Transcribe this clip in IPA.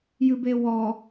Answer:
j ɨ b e w ɔ

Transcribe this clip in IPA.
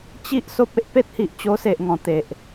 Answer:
t͡ɕ i˦ ʔ s o˦ p̚ e˦ ʔ p e˦ t̚ h i˨ ʔ t͡ɕ o˧ s e˨ ʔ ŋ ɔ̃˨˩ t̪ e˨ ʔ

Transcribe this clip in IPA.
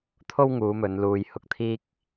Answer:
t̪ʰ o˥ w ŋ uː˨˧ m ɵ˨˧ n l uː˧ j h ʊ˧ k̚ t̪ʰ iː˥ k̚

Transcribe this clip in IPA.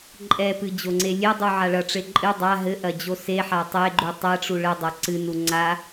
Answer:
ǃʼ ɛ p ɨ d͡ʑ o ŋ͡ǀ e lʲ e dˤ u ʕ a ɭ ɐ ʈ͡ʂ e ǃʼ ɨ dˤ a ɦ ɘ ʔ ɐ d͡ʑ o s e ħ a tˤ e ɡ͡ǃ u tˤ ɛ ʈ͡ʂ u ɭ ɘ dˤ ɐ ǀ ɨ n u ŋ͡ǀ a

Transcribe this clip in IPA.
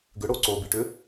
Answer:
ɡ ʏ ɽ o ǀ o b i ʈ ʏ

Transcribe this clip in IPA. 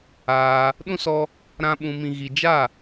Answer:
aː˧ | ɗ ũ˦ s ɔ˧ | ɾ ã˦ ɓ ũ˧ m ĩ˧ ɣ i˧ d͡ʒ a˦˨

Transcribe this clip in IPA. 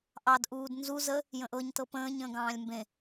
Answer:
ʔ ɑ d ʔ uː d n z u z ə | j ə̃ ʔ ɤ ɲ t ɤ p ə̃ː ɲ ə̃ː ɡ ɑ̃ː lʲ m b ẽ

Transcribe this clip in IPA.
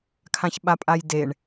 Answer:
kʰ ã ç ɓ a pʼ a j d e ɳ

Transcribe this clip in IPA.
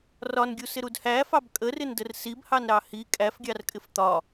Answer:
r ɒ n ɡʲ u s ɪ ɾ u d h æ f ɑ b kʼ ə r ɪ n d ə r s i b h ɑ n ɾ ɑ h i kʼ æ f ɡʲ ɑ r kʼ ɪ f t̪ ɒ

